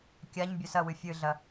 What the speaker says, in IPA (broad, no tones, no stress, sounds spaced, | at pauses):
kʲ a ɲ bʲ ɵ s ɐ w ɨ fʲ ɨ ɮ ɐ